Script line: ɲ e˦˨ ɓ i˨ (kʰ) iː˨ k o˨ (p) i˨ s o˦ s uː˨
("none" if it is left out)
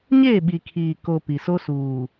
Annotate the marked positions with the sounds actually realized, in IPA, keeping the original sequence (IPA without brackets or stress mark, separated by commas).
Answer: kʰ, p